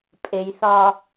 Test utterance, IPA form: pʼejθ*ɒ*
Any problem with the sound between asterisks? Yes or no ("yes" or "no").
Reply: no